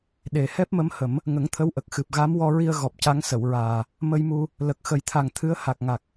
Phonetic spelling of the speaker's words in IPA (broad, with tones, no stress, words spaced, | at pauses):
ɗe˨˩ hɛ˦˥p̚mə˧˥mhə˨˩˦m | ŋə˨˩˦ŋt̪ʰə˧˥w ʔə˨˩k̚xɨ˨˩p̚ɣa˧˥m wɔ˧ɹi˧ə̯ ɣɔ˨˩p̚ca˧˥ŋsə˨˩˨wɹaː˨˩ | mə˧jmu˧ | lə˨˩k̚xə˨˩˦jt̪ʰa˨˩ŋ t̪ʰɨ˧˥ə̯ ha˨˩k̚ŋa˨˩k̚